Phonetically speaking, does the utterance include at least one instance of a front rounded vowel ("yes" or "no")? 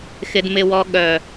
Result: yes